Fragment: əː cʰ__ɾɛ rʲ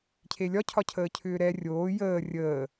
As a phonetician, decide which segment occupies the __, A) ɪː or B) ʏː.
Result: B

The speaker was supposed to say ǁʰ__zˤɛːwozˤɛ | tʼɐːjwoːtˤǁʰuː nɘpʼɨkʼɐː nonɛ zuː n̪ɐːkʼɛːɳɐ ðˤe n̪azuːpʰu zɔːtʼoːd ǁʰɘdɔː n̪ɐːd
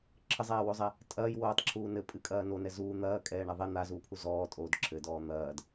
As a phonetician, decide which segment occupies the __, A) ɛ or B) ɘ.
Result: B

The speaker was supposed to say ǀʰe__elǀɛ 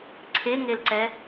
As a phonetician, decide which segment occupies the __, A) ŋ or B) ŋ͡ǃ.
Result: A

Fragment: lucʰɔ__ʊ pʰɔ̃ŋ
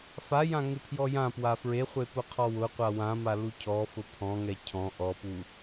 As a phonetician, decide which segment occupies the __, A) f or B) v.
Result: A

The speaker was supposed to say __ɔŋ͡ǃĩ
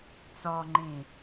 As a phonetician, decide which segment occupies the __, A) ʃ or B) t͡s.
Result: B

